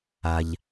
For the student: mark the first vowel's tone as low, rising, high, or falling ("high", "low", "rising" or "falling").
low